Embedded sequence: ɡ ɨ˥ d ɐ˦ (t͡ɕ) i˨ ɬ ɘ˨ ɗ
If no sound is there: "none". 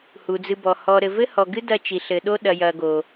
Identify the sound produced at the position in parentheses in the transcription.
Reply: t͡ʃ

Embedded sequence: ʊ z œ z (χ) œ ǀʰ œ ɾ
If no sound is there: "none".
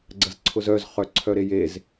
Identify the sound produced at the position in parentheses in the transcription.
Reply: χ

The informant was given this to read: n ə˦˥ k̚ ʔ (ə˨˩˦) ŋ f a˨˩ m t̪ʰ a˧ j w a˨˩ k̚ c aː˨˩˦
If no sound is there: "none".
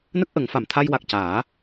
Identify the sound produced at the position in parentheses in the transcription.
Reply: ə˨˩˦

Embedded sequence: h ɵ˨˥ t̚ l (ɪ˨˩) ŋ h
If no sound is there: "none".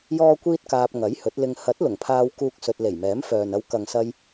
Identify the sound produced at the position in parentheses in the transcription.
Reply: ɪ˧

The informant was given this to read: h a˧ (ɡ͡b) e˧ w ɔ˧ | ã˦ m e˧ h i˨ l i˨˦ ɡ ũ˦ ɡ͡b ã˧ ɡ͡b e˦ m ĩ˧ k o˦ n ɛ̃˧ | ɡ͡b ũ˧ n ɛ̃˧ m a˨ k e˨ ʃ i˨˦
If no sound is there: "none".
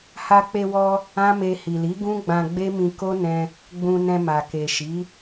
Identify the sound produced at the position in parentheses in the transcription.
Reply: k͡p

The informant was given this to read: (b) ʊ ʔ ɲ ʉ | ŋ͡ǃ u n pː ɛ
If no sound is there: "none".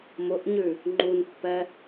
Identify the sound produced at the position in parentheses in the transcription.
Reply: m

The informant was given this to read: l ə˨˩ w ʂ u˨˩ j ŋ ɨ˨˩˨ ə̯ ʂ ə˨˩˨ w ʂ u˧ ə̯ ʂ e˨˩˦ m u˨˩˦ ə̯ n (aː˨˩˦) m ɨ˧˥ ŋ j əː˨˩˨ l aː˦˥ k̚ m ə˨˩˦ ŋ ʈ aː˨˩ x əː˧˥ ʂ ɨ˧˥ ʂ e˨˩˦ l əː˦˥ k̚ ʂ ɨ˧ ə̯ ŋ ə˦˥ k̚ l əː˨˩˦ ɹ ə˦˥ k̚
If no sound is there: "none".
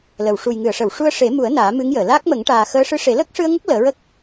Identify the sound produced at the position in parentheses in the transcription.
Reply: aː˨˩˦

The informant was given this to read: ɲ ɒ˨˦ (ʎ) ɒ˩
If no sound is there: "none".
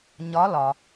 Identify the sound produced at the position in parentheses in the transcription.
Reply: l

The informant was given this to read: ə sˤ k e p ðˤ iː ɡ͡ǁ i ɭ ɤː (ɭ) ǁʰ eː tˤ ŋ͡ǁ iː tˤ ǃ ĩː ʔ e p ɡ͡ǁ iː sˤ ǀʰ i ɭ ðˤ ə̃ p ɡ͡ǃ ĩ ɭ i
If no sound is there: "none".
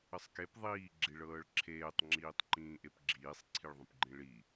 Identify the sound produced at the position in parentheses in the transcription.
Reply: ɭ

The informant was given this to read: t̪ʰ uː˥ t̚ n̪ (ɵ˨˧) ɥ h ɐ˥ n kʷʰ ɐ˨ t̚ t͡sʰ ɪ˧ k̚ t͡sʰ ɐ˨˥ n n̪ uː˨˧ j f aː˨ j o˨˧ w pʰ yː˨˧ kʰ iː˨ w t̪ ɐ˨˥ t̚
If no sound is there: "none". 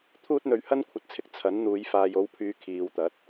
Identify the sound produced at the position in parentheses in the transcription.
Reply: ɵ˨˧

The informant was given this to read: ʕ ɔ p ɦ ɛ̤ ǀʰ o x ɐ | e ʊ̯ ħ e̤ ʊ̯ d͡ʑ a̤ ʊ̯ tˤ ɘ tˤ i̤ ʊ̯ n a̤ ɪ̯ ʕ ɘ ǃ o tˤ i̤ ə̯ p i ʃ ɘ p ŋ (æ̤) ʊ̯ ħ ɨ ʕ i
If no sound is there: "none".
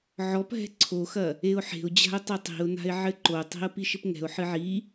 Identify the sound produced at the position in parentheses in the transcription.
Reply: ɛ̤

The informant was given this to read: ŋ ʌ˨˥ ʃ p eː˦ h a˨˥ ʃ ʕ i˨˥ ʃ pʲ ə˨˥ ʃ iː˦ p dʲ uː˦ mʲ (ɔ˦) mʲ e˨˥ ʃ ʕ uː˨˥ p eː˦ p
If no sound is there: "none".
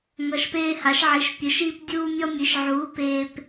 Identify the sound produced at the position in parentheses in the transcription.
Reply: ɔ˦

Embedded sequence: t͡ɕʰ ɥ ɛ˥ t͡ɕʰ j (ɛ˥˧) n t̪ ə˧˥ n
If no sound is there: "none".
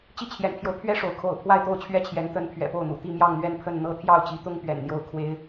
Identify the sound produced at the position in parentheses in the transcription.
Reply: ɛ˧˥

